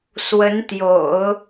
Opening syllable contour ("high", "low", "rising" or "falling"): rising